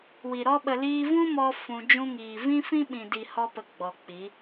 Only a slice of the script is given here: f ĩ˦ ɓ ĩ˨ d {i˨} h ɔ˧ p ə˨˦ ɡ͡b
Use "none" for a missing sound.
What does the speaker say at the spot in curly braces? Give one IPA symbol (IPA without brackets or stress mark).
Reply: i˨